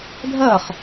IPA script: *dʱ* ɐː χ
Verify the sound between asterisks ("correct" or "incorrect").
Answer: correct